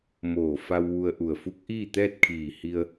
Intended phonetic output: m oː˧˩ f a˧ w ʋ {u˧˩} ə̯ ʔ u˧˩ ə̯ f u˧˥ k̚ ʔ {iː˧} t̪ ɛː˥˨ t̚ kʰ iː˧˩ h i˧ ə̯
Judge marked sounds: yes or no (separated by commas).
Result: no, no